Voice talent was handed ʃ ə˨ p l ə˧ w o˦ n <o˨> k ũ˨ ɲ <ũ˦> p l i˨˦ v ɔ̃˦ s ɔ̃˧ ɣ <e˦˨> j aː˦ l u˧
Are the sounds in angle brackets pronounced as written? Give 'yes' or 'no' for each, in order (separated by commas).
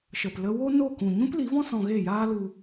no, yes, yes